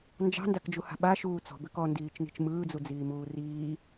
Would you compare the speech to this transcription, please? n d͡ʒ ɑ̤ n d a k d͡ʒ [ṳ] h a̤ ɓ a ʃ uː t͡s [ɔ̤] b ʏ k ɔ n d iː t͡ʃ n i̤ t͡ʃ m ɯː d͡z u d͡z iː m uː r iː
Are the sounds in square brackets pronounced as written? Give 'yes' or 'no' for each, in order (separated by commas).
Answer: no, yes